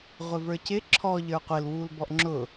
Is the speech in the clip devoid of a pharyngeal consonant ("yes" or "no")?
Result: yes